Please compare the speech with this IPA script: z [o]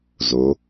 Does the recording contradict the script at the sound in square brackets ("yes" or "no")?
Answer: no